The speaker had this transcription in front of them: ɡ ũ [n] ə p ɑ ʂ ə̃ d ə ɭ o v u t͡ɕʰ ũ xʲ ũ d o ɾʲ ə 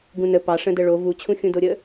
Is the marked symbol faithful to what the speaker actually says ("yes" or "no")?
yes